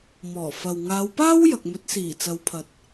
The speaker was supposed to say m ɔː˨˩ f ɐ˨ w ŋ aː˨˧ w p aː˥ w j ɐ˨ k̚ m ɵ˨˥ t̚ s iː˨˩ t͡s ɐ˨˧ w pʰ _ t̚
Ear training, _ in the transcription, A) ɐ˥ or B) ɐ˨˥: B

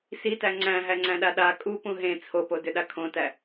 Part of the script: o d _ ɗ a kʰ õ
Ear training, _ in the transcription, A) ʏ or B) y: A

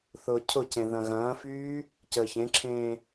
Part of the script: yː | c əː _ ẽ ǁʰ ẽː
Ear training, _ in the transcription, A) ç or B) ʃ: A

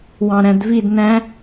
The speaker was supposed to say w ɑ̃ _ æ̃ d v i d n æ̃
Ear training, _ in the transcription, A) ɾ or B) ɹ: A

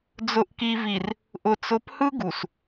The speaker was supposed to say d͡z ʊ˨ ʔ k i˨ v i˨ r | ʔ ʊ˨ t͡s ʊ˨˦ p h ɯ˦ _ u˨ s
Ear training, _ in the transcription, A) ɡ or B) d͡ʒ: A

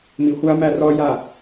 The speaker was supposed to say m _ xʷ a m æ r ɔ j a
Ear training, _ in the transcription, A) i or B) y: A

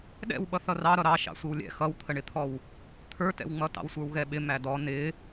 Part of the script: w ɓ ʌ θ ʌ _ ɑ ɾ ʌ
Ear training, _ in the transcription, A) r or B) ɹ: A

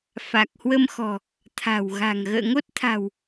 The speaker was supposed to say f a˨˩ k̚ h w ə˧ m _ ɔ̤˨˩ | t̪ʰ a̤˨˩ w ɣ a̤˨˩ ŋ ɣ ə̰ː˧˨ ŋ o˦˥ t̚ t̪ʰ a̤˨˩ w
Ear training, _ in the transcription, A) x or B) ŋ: A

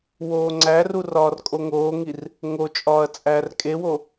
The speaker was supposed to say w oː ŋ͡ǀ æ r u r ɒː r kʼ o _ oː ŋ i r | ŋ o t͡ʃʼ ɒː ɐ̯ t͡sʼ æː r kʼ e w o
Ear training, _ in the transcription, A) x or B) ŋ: B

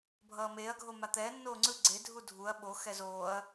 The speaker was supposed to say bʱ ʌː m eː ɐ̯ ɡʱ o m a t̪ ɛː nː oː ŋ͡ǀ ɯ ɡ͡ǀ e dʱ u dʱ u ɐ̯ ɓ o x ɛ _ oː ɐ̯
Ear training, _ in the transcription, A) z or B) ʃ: A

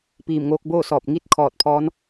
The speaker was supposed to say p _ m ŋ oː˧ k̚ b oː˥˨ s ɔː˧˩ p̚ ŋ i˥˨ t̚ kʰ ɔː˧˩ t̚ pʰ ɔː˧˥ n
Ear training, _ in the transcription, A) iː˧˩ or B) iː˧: A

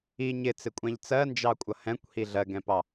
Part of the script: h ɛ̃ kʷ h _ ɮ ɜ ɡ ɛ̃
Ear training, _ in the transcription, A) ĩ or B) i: B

